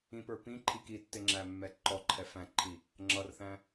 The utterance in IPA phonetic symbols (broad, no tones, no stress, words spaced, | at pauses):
ĩpə˞ pĩ ǃʰikitːɪ ŋ͡ǁæmːɛǃɔǃʰɛ fæ̃ǃʰi | ŋ͡ǁʌrθæ̃